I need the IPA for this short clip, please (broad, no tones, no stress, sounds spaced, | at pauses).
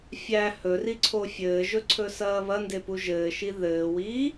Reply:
fʲ æ h ɵ r i ǀʰ o fʲ ɘː ʒ ɵ ǀʰ ɵ s ɐː β ɐ n d e p u ʒ ɘː ʃ i ð ɘː w iː